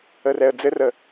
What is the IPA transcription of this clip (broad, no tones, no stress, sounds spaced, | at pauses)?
ə r ɛ ə̯ d͡z ɘ r ə